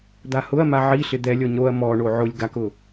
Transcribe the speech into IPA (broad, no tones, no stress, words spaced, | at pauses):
d̪ahʊɐ̯ma ʕiɬɪ d̪ɛlʲɔɲ ɾoɐ̯ mɔɳo ʕʊlʲ ɡakʊ